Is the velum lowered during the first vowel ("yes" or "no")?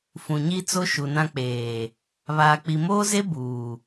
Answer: yes